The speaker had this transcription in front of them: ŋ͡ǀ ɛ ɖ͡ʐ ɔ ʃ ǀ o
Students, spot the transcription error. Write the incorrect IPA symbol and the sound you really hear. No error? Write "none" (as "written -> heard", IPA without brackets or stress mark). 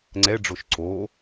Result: ɔ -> o